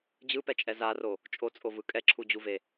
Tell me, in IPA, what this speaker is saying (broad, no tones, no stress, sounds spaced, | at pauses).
d͡ʑ ɯ p ɛ t͡ʃʼ ɛ z a r o | t͡ʃʼ o t͡sʼ o v ɯ kʼ ɛ ǁʰ u d͡ʑ u v e